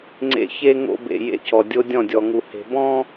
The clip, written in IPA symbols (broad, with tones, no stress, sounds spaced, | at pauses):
ŋ͡ǀ ḛ˦ ç e˦ ŋ o̰˦ b ḛ˨ j ḛ˦˨ c ɔ˨ dʲ o˦ dʲ ɔ̃˦˨ dʲ ɔ˨ ŋ u˨ h e̤˨ b ɔ̃˦